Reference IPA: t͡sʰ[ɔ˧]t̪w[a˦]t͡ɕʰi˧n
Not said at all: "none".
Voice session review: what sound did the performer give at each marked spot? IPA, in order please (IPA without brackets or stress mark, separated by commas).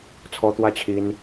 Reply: ɔ˧, a˦